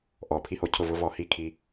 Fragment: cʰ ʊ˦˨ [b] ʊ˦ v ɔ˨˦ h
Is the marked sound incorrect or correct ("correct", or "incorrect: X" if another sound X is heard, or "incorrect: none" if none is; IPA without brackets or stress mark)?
incorrect: v